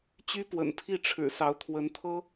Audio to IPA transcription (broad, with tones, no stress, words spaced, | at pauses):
t͡ɕy˥pwə̰˨˩npʰi˥˩ʈ͡ʂʰɻ̩˨˩ sɑ˧˥ʊ̯t̪ʰwə˧˥nt̪ʰɤ˥